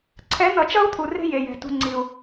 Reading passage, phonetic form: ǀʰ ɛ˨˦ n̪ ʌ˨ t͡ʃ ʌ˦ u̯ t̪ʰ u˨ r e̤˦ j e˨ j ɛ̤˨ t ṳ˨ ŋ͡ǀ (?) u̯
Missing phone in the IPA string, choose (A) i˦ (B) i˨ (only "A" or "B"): B